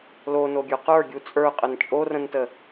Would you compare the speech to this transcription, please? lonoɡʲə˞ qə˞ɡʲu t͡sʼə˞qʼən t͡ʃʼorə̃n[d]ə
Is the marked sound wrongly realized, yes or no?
yes